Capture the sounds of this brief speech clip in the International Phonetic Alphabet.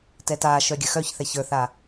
tɛtaʃœ ɡʲəxœçθɛ çə˞θa

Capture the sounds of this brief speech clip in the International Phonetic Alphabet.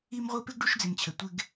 i˦mʁʷi˦ pɪ˥ɡɖu˦ʃd͡zɪ˨mt͡ɕʰə˨ tʷɪ˦ɡ

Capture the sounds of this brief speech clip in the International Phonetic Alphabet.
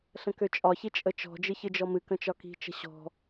ɬə̃køt͡ʃʼɒçi t͡ʃʼət͡ʃɔ̤d͡ʒɨ çɨd͡ʒɔmɨkə̃ t͡ʃɒki̤t͡ʃə̤ ɕɔ̤

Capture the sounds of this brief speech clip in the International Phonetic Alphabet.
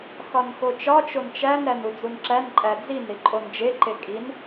xɒnxot͡ʃɒ t͡ʃont͡ʃæn ɾænud͡zunǁæn ǃʼæd͡zin ɾiǃʼond͡ʒe ǃekʼin

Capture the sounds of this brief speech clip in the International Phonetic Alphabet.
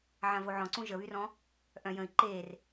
ʕãvoʕɔ̃ǀũ ʒəβyrɔ̃ | ʔœ̃ jə̃i̯ ǃer

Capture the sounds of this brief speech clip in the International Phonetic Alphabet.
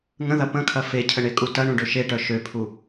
ŋə̃ðɐ pə̃kʰɐ fecʰəɳekʼu tɐɳũɖø ʃeʈœ ʃøpʰu

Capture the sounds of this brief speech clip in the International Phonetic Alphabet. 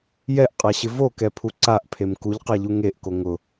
jɛʔqʼaɕɪ vokɛpʰu ǀaʔpʰem kuʎqaʎu ŋeʔko ŋʊ

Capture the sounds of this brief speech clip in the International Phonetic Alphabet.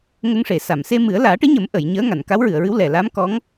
ŋə˧ŋʂe˨˩˨sa˨˩˨m se˧mɨ˨˩˦ə̯ laː˨˩˦ʈɨ˧˥ɲə˨˩˦m ʔə˨˩˨j ɲəː˧˥ŋa˨˩˨n ka˧˥wɹɨ˨˩˨ə̯ɹɨ˧˥w lɛ˨˩ la˧˥mkɔ˧˥ŋ

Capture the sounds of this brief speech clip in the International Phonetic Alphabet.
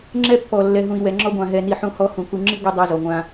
ŋ͡ǁɛ˦pːɔ˨ lːɛ˨ɦũ˨i̯wɛ˨ŋ͡ǁɔ˦ ɡʷã˨ɦɛ˨ni˨ ħũ˦hɔ˦hũ˨ ku˨ŋ͡ǁi˦ ɡʷi˦ dˤɛ˦zɔ˨ŋʷã˦

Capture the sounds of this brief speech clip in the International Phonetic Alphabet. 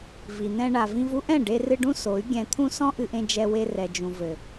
vi˨ n̪ɛ̃˧ ɳa˨vĩ˧vu˦ʔɛ̃˦˨ ɖe˧rɨ˧ɖũ˦ so˨˦y̯ ɡʲɛ̃˧t̪ʰũ˦ sɔ̃˦ʔɨ˧ʔẽ˧ d͡ʒɛ˧we˧rɛ˨d͡ʒũ˨ vɘ˨

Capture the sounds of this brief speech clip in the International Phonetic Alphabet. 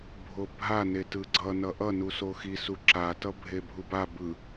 bʱobʱa netɯɡ͡ǀʌ nʌʔʌ nusoxi suǁa tʌbʱebʱuba bɯ

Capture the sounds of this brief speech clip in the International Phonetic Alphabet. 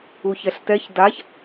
uçɛɬtɛç daç

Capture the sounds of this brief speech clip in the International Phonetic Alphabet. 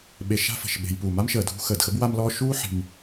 ɓe˨ ʃa̤˦fə̤˩ʃɓe̤˨j puː˩ma˥mʃəː˩dʱṳ˦ xəː˩d xə˥bwa˦mlɔː˦ ʃuː˦ ħi̤˩m

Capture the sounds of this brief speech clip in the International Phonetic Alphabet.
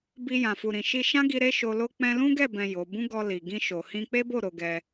bi˧ jã˨fu˨ɾĩ˨ʃi˧ ʃã˦ɡi˧ ɾe˦ʃo˧lo˦ k͡pɛ̃˧lũ˦ɡɛ˦˨bɛ̃˨ jo˨˦ bũ˦ɡɔ˧li˨ ɡĩ˧ʃo˨ hĩ˧k͡pe˦bo˦˨ ɾo˨˦ɡɛ˧

